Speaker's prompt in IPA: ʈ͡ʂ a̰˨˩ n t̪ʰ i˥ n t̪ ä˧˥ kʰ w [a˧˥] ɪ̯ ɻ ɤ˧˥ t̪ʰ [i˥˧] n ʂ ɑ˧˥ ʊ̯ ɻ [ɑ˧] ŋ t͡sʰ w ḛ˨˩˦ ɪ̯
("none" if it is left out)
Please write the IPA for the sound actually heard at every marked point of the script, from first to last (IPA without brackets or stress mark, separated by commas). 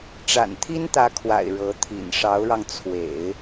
a̰˨˩, ḭ˨˩, ɑ˧